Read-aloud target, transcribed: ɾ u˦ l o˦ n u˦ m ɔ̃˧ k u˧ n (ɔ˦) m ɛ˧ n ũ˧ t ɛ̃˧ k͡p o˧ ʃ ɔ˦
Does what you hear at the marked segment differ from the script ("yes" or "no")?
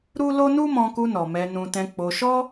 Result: yes